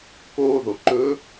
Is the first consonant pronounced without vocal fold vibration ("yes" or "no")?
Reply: yes